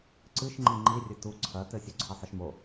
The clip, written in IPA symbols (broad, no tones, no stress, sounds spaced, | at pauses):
ǀ ɨ ʃ ŋ͡ǃ i ŋ͡ǃ i rʲ ɘ t u ǀʰ ɐ t ɘ sʲ u ǀʰ ɐ sˤ ɘ ʃ m o